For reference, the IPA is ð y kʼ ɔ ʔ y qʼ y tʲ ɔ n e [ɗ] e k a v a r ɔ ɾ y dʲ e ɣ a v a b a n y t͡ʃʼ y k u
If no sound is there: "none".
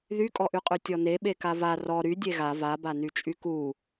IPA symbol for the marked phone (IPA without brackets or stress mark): ɓ